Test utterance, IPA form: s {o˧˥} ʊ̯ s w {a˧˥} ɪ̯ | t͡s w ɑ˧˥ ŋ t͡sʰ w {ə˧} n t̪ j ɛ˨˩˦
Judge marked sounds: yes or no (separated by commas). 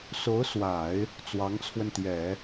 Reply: yes, no, yes